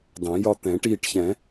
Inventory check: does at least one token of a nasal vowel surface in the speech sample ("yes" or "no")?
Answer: yes